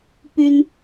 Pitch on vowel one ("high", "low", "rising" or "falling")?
high